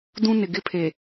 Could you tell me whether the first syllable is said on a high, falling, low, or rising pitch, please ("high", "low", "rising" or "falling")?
high